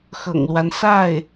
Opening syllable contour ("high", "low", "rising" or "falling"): low